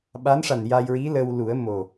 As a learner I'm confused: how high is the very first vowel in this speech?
low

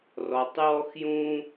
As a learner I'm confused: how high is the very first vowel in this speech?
mid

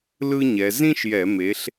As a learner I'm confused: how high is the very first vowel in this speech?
high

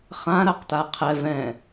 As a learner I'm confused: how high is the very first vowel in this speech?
low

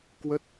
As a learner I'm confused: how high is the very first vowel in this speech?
mid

